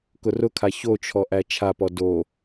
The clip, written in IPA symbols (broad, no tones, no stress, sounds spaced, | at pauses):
k ʊ r ʊ kʰ a ç o t͡ʃʰ ɔ ʔ æ t͡ʃʰ a p ɔ d o